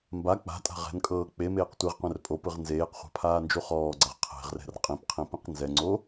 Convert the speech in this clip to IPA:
mba k͡pa̤tʼa̤ ʁɛ̤nkʼɤː k͡pemeːq tʷeʁqʷɛ̃r pʼo pɯʁnzeːqχʷa̤ pʰaːnd͡ʒuχɔːɡ͡ǀaʁ qʰe̤ʁrɛ̤r qʼĩpqʰĩ pĩqnzɛŋ͡ǀo

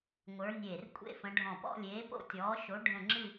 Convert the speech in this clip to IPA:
ŋʷə˞˨˦nʲeː˧˩r kʷʼḛ˥˧fə̃˨˦ɖʱɔ̃˧˩ pɔ̰˥˧lʲeː˨˦po̰˥˧tʲɔː˨˦ ʃo˨˦ ɖʱə̃˥˧ ŋ͡ǁɨ˥˧

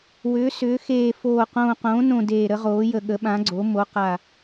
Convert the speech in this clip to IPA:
wʏː˩˧sʏː˩˧ xeː˨˩foː˨˩ qõː˨˩qõː˩˧nõ˨˩ deː˨˩ɾə˩˧ʁoː˩˧ jə˨˩ɠə˩˧ɓã˩˧ɡ͡ǀo˩˧ mo˩˧qa˨˩

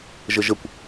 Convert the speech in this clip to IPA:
ʒəʒəkʷ

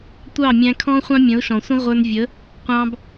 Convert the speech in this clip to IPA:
tʷɑ˦˨mʲæ̃˧kʰɔ̃˦ χʷɑ̃˦mʲə̃˨˦ʊ̯ʃɔ̃˨sʷə̃˦ ʁʷə˞˧nvʲə˨˦ | qʷɑ̃˧b

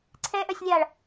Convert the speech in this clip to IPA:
ǀʰɛʔœsʲlʲaːɭ

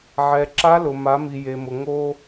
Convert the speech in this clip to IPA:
ʕɛ˩ ǁa˧˥lʊ˩ ma˩˧mi˩je˩mʊ˩ ŋo˧

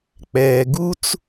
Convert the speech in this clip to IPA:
k͡pɛː˩ɡu˦t͡s

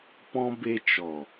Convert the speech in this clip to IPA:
pɔ̃˦ be˧ t͡ʃɔ˨

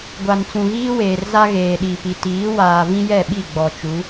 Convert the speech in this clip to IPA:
ɡʷa˨nt͡sũ˨ɣiː˦weː˨r za˦ ɣeː˨ɗi˨pi˨ tiː˨˦ waː˨ vĩ˦jɛ˦˨ɓi˦˨ ɡ͡bɔ˨t͡ʃu˨˦

